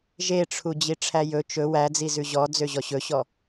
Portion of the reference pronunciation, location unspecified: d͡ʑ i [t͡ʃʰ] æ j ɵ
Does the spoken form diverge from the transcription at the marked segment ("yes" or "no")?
yes